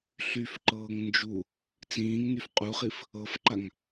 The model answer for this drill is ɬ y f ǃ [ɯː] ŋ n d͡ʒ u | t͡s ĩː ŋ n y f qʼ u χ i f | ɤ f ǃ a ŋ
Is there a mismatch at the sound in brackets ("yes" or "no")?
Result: yes